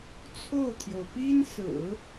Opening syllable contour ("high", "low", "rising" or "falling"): falling